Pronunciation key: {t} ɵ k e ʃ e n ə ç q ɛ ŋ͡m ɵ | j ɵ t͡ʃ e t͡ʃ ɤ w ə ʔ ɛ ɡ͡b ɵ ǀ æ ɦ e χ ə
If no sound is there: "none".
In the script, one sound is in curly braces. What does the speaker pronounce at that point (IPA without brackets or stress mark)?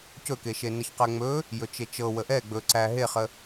c